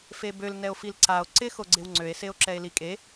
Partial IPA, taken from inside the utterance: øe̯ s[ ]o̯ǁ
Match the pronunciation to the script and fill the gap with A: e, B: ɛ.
A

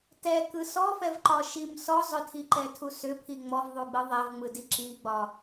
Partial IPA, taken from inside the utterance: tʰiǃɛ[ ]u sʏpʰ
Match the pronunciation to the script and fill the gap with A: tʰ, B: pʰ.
A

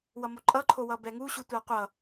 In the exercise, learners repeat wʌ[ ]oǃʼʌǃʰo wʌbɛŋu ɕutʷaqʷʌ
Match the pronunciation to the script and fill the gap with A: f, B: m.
B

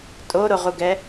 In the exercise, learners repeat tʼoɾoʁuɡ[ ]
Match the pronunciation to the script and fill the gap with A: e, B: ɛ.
B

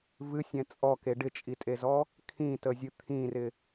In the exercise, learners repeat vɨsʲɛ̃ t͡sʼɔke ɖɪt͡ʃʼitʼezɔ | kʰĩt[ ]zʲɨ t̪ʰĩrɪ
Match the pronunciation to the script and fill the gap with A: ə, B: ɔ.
A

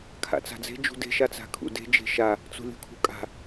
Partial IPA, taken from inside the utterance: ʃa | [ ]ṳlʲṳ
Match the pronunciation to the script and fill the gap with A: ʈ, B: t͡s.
B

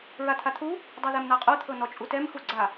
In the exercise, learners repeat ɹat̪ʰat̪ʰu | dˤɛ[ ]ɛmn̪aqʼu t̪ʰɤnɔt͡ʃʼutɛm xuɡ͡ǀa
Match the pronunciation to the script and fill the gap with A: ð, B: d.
A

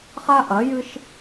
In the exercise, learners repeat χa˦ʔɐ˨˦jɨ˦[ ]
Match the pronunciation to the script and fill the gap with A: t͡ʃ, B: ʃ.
B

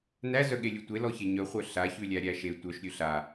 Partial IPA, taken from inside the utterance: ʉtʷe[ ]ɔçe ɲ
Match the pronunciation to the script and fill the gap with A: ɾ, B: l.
B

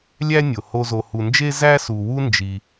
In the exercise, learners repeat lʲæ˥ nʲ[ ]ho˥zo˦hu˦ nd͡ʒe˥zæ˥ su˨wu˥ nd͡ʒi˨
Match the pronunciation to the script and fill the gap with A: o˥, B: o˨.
B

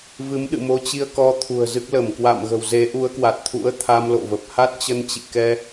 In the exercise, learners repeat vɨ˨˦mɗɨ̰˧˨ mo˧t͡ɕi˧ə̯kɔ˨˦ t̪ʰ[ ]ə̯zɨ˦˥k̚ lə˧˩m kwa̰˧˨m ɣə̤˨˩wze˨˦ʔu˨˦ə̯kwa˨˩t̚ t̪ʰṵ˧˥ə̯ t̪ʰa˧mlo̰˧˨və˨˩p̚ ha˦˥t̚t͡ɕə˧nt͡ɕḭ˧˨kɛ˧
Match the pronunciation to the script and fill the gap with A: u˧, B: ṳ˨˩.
B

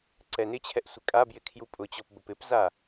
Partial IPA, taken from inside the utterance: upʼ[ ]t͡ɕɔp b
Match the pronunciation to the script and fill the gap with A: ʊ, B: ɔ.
A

